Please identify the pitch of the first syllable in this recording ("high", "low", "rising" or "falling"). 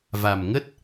low